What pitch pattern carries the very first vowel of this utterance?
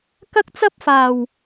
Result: high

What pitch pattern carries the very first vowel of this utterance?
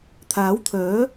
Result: rising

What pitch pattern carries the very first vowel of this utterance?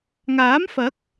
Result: rising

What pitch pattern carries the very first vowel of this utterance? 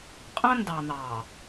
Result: high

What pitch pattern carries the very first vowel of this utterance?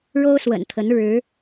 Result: high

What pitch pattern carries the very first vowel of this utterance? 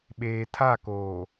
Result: low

